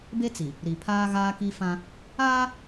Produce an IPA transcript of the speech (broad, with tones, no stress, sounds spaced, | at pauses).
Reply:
b e˦ t͡s i˨ | ɾ i˨ pʰ aː˦ ɣ aː˦ k i˦ f ã˦ | aː˦